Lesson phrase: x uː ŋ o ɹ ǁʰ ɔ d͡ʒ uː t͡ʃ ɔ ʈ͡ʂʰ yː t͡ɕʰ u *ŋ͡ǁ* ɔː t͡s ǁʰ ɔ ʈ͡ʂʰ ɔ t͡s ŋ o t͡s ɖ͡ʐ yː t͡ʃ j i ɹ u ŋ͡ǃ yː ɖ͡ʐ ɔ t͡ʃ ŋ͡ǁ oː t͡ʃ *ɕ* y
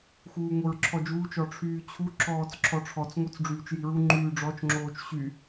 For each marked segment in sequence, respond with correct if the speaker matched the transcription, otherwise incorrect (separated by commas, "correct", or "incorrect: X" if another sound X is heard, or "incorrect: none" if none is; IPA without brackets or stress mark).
incorrect: ǁ, correct